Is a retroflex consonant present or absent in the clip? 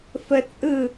absent